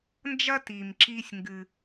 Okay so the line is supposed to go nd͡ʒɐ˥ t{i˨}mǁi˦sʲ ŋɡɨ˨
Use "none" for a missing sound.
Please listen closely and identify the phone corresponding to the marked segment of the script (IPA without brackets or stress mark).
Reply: i˨